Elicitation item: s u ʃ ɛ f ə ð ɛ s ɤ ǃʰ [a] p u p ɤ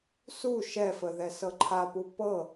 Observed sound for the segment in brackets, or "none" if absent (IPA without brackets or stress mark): a